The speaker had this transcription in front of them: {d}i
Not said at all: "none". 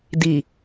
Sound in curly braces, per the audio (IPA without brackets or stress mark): d